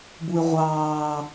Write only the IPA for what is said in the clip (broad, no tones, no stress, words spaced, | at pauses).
buɪ̯ʁʷɑː